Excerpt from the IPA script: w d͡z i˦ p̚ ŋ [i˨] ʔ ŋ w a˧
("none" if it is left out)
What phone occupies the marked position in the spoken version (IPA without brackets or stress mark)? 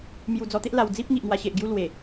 i˨